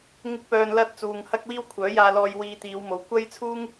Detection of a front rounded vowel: present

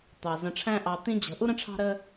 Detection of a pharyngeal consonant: absent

